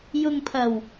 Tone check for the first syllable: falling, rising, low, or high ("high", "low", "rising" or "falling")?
low